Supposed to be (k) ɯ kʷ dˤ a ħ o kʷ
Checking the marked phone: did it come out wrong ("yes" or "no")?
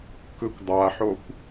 no